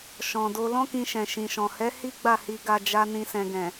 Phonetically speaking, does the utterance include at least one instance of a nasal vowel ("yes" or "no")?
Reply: yes